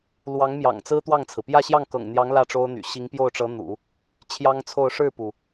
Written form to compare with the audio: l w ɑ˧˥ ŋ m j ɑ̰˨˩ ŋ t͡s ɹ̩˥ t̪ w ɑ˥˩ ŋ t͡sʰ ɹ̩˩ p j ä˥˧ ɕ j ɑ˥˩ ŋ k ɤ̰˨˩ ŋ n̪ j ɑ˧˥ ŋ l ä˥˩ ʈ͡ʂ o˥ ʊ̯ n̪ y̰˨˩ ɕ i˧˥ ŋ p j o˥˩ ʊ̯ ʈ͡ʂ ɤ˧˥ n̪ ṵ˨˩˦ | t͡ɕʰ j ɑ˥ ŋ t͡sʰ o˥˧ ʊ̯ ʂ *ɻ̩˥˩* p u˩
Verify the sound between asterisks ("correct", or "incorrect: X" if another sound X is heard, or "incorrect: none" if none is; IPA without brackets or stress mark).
correct